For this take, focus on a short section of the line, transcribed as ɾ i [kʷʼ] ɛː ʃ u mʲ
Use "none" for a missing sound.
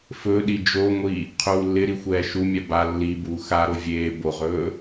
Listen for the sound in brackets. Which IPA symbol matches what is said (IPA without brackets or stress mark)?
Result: xʷ